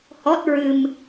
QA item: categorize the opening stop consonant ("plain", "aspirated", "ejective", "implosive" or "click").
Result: plain